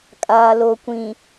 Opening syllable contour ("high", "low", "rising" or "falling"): low